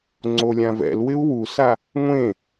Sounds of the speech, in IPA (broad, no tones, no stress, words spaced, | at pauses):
ŋ͡ǀolʲãvɛ̰lwɪu̯ wusa | ŋʷẽ